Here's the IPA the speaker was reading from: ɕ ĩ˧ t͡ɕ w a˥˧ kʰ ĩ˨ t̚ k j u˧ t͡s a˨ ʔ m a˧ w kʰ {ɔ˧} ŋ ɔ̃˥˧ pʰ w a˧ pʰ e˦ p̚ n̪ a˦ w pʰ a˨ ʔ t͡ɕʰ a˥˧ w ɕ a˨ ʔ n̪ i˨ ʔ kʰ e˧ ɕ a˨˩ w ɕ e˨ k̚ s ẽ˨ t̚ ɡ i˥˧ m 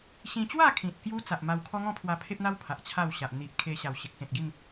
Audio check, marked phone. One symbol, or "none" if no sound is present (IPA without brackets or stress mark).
ɔ˦